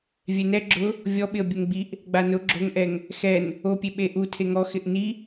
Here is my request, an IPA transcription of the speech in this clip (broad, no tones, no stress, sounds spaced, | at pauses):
vʲ ɛ n ɛ ɡ͡ǁ ʊ | vʲ ɔ ɓ ɪ ə̯ bʲ ʊ ŋ ɡ͡b i ʔ | ɡ͡b a n ʊ ɡ͡ǁ o ŋ ʔ ɛ ŋ | x ɛ n | o pʲ e ɓ e ʔ u tʰ e ŋ ɔ x ɪ ʔ n i